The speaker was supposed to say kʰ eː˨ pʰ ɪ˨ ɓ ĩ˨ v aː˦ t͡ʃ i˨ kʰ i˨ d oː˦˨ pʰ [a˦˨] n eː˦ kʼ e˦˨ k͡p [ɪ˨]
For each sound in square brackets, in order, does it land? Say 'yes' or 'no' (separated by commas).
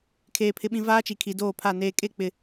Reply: yes, yes